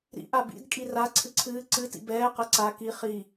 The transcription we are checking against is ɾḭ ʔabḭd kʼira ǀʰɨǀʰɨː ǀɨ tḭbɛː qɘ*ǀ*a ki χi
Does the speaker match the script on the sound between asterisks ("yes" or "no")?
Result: yes